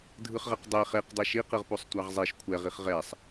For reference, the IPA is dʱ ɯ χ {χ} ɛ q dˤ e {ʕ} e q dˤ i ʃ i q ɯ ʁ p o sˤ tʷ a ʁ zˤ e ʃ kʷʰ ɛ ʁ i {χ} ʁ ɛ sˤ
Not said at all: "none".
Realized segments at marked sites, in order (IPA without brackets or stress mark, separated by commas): ʁ, χ, χ